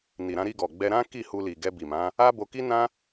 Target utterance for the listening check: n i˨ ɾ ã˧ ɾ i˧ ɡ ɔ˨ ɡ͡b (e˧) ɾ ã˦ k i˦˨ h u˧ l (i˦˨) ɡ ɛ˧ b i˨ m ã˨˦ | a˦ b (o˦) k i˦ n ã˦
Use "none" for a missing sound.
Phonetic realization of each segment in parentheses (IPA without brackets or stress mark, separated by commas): ɛ˧, i˨, o˧